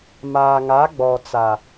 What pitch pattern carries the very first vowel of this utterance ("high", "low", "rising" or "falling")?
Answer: low